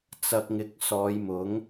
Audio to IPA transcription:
t͡sɐ˨k̚ŋɪ˨˥k̚ sɔː˨˧jmʊ˨˥ŋ

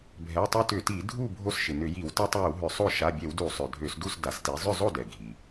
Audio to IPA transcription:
bʱɛ˩˧˩tˤø˦tʏ˧˩˧ti˧˩˧ dʱu˥˨ bʱo˦sʃɪ˩nʏ˧˩˧ji˧˩˧w ta˦tˤjʏ˧˩˧w ɦʏ˧˩˧sˤo˥˨ ʃa˩˧˩bʲɛ˧˩˧wdu˧˩˧ sˤø˩dʱø˧˩˧sdu˥˨s da˩˧sti˩˧ zˤʏ˥˨zˤo˥˨dɛ˩ ɡʱi˩

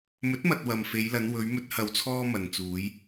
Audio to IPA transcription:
mɵ˨˥t̚mɐ˨t̚ wɐ˨mfe˨˧jlɐ˨˧n wɵ˨˧ɥ mɵ˧t̚hɐ˨wt͡sʰɔː˧ mɐ˨nt͡suː˨˧j

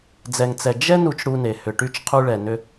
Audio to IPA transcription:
d͡zɛ˩ŋt͡sɛ˩ d͡ʒɛ˥ nu˧t͡ʃɽu˧ ne˩ hʏ˩ʈy˧t͡ʃ qʰu˧ɭɛ˩ nʏ˧

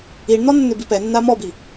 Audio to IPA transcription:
iɳn̪ɔ nːʏbipɛnːa mɔbi

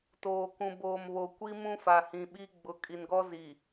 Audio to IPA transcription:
toː˨kũ˨ boː˨mβo˨ kʷi˦ mũ˦fa˨hĩ˨ɓi˦ ɡ͡bʊ˨kʼi˨nɡɔ˦ zi˨

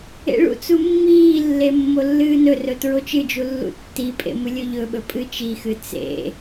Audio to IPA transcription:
ḛɭṵt͡su mːiːlːe mːolːɨːnɵrɵ tɹot͡ʃɨd͡ʒu lːṵtːipʼḛ mɨlʲɵʎɵɓɵ pʼɨt͡ʃixɨ t͡sḛ

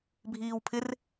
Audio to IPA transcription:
bʱiːwpʰɪr

